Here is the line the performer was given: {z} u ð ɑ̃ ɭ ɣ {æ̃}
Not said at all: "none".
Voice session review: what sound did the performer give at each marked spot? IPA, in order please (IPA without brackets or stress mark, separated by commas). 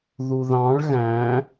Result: ð, æ̃